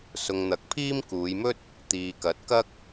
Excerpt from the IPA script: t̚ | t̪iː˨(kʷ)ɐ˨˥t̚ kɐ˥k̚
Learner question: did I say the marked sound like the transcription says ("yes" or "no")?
no